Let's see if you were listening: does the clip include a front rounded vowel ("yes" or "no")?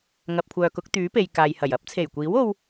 yes